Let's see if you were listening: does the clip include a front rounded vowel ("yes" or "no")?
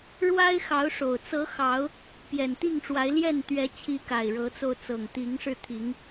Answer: no